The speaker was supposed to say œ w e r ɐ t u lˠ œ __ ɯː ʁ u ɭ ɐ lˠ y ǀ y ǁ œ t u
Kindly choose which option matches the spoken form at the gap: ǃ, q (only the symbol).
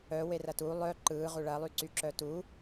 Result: ǃ